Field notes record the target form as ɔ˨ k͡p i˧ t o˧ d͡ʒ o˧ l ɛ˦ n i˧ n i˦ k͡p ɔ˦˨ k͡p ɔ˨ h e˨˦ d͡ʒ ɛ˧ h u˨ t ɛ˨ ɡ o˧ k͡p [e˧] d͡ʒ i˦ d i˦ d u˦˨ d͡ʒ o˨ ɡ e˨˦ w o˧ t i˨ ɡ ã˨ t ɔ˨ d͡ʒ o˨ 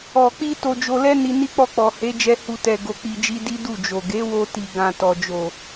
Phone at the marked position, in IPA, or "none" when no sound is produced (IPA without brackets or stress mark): i˧